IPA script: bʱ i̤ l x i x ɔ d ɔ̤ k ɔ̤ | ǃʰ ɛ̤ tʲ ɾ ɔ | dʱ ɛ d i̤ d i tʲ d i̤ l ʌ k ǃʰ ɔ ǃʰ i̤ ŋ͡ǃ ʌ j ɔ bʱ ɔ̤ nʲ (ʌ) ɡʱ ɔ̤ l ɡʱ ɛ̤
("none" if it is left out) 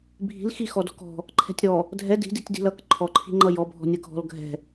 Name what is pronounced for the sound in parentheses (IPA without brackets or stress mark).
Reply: ʌ